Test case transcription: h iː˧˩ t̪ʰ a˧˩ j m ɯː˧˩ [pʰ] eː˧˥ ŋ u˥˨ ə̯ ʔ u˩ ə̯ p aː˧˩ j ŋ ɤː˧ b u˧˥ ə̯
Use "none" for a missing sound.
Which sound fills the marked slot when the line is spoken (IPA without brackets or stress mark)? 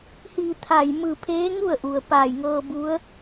pʰ